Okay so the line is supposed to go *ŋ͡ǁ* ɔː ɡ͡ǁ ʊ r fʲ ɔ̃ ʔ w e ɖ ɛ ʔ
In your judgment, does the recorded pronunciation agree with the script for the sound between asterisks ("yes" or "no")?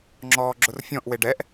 yes